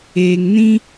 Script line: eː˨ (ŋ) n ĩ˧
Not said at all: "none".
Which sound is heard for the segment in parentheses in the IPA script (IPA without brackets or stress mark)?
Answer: ŋ